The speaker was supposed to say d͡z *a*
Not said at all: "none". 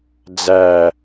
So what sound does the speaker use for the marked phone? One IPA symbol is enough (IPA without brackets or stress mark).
æ